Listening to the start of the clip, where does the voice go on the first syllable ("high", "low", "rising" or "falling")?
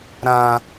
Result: high